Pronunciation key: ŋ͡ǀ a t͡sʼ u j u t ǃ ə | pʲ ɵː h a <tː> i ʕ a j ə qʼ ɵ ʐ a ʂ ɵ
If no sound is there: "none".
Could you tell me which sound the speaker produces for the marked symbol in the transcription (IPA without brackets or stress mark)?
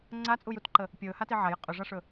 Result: t